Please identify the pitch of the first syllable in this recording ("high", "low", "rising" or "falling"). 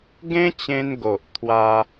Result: high